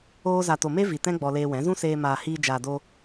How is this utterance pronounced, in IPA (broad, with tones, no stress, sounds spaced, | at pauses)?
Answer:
oː˧ z a˨ t o˨ m e˦ v i˨ t ɛ̃˦ ɡ͡b ɔ˧ l eː˧ w ɛ̃˨˦ z ũ˦ s eː˧ m aː˨ h iː˧ d͡ʒ aː˨ d o˧